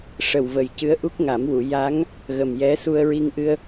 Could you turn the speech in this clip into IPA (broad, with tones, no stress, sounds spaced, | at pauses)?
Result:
ʂ ə˨˩ w v ə˨˩ j c ɨ˧˥ ə̯ ʔ u˦˥ k̚ ŋ a˨˩˦ m w u˨˩˨ j a˧˥ ŋ | ɣ ə˨˩ m j ɛ˧˥ s u˧ ə̯ ɹ i˧ ŋ ʔ ɨ˧ ə̯